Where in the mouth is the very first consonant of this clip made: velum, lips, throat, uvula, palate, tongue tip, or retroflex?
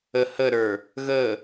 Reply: throat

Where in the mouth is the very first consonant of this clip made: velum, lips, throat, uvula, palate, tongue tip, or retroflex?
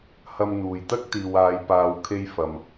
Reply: throat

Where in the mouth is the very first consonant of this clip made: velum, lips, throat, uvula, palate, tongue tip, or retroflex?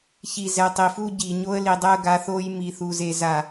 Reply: palate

